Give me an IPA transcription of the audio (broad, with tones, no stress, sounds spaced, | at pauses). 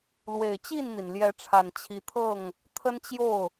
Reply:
l w e˨˩ ɪ̯ t͡ɕ i˥˨ n n̪ i˩ n l j ɛ˨˦ ʈ͡ʂʰ a˨˩ n t͡ɕʰ i˨˦ t̪ʰ ɤ˥˨ ŋ | t̪ʰ ə˦ n t͡ɕ j o˥˨ ʊ̯